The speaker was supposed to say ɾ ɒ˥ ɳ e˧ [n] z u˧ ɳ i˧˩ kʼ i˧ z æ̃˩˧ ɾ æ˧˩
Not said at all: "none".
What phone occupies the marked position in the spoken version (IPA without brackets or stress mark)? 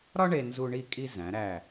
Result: n